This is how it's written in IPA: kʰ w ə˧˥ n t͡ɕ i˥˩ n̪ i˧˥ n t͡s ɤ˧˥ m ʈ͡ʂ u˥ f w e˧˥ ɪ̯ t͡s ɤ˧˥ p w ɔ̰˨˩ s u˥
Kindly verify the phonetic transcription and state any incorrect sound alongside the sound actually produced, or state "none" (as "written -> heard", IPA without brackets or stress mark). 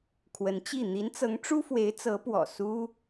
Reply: m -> ŋ